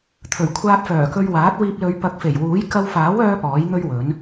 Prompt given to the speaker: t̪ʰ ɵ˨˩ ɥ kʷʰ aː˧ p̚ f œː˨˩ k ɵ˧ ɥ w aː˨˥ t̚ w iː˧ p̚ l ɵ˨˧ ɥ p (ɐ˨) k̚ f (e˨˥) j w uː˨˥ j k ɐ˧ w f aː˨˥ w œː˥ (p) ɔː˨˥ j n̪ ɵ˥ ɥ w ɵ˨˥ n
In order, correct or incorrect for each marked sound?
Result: incorrect: ɐ˨˥, incorrect: e˨˩, correct

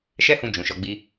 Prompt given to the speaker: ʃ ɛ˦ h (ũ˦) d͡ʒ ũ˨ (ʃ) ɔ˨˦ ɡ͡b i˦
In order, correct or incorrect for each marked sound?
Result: incorrect: ũ˧, correct

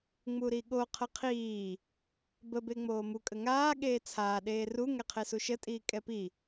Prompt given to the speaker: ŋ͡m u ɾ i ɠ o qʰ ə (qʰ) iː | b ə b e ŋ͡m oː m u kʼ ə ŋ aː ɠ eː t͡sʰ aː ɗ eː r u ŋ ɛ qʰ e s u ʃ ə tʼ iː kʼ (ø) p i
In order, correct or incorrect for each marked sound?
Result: correct, incorrect: ɛ

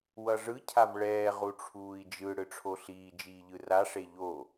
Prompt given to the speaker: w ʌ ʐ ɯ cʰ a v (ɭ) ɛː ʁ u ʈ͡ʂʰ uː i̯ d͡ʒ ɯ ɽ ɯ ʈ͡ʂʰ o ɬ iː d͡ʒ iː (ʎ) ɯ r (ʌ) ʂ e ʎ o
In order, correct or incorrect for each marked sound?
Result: correct, correct, incorrect: a

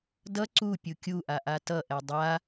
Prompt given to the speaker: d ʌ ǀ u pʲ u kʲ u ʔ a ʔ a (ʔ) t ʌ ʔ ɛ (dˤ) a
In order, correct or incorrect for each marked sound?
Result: incorrect: none, correct

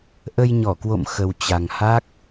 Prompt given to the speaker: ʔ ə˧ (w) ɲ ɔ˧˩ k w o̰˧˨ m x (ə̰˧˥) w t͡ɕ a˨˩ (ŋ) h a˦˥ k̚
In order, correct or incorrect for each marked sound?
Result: incorrect: j, incorrect: ə˨˩, correct

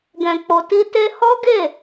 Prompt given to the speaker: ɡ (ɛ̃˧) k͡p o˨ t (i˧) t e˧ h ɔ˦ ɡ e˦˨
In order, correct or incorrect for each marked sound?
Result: incorrect: ɛ̃˨, correct

